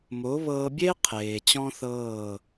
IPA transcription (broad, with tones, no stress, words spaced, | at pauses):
mo˨˦βɤː˧bʲe˦ qʰeː˨t͡ɕɔ̃˦θɤː˦˨